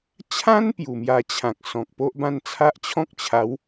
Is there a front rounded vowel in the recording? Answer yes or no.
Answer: no